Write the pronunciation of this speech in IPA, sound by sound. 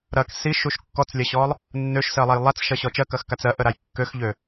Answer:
ɾ ɐ k s i ʃ u ʃ kː ɔ t͡s lʲ ɐ ɕ ɔ lˠ | nː ø ʃ s ɜ lˠ a j lˠ a t͡s ʃ ɐ ɕ ɔ t͡ʃ ɜ k ɐ x k a t͡s ɜ ʔ ə ɾ a j kː ø x ʎ ø

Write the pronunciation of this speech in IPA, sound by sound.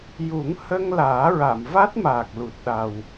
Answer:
j u˨˩˦ ŋ h ə˧ ŋ l aː˨˩˦ ɹ a˨˩˨ m v a˦˥ t̚ m aː˨˩ k̚ l u˨˩ t̚ ɗ a˨˩ w

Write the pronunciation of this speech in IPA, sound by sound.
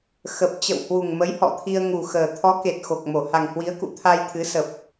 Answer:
x ə˨˩ p̚ t͡ɕ ə̰˧˨ w h w u˨˩ ŋ m ə˨˦ j h ɔ̰˧˨ t̪ʰ i˧ ə̯ ŋ u˨˩ x əː˨˩ t̪ʰ ɔ˨˦ k e˨˩ t̚ x o˨˩ k̚ m o˧˩ h a˨˩ ŋ h w i˨˦ ə̯ k ṵ˧˨ t̪ʰ a˧ j t̪ʰ ɨ˨˦ s ə˨˩ p̚

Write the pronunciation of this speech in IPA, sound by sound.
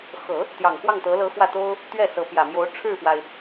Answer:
x ɤ˨˩˦ | t̪ j ɑ˨˩ ŋ x w ɑ˥˩ ŋ t̪ ɤ˧˥ l ɤ˧˥ x w ä˥˩ t̪ o˥ ʊ̯ | t̪ ɥ ɛ˥˩ s ɤ˧˥ p j ä˨˩ m j o˧˥ ʊ̯ ʈ͡ʂʰ ɻ̩˥˩ f w a˩ ɪ̯

